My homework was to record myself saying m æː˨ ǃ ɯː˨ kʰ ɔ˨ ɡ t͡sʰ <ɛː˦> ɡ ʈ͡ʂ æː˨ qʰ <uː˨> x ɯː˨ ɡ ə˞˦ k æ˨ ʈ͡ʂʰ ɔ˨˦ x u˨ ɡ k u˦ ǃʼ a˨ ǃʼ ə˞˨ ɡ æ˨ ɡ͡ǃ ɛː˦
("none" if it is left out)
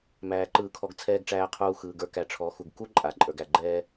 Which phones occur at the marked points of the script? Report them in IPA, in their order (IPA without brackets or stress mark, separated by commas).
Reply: ɛː˨, uː˨